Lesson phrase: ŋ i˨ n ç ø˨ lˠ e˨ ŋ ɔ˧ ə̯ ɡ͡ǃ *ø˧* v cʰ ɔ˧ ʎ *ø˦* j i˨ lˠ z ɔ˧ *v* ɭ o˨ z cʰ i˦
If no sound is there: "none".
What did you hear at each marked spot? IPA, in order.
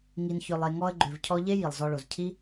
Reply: ø˨, e˦, none

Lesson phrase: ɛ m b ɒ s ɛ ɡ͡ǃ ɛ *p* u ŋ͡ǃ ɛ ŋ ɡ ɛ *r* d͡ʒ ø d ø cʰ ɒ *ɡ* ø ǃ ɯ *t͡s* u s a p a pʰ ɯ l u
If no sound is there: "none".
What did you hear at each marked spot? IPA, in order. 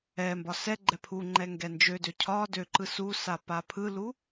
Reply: pʰ, n, d, s

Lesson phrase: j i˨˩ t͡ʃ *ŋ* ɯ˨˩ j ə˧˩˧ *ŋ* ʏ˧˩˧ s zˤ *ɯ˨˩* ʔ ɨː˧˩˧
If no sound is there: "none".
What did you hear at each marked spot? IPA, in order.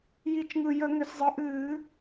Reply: ŋ, ŋ, ɯ˨˩

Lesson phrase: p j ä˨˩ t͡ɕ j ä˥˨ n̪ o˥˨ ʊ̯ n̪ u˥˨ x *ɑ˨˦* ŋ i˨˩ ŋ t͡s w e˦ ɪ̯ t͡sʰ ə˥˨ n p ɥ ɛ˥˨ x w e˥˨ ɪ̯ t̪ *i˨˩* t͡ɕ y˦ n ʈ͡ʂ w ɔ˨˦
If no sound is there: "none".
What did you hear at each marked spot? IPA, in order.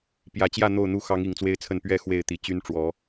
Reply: ɑ˨˦, i˨˩

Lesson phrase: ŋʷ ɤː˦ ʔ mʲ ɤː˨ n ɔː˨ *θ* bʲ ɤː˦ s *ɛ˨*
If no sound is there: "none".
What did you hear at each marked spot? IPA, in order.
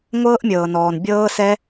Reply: n, ɛ˦

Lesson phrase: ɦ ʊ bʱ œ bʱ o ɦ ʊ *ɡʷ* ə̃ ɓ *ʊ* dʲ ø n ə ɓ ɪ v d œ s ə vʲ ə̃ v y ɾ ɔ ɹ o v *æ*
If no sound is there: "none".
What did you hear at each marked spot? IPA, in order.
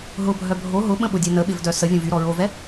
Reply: ɓ, ʊ, ɛ

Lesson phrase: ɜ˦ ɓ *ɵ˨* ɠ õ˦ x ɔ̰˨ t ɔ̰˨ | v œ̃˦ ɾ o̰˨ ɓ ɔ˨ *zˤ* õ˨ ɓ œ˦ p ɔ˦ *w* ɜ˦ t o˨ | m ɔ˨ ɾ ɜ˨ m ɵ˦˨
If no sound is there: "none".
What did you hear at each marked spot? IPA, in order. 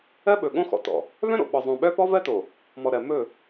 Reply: ɵ˨, zˤ, v

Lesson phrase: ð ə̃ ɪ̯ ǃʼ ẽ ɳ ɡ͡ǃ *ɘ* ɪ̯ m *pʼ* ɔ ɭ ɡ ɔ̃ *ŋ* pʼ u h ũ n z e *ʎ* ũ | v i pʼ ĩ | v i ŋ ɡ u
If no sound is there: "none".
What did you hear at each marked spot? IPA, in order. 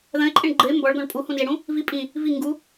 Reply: ɘ, b, ɳ, ɽ

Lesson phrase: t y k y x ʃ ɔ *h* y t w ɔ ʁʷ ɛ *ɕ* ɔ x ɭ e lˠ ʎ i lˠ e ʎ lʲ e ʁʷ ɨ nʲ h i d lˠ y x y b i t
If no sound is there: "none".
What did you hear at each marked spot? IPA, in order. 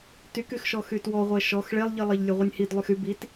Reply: x, ʃ

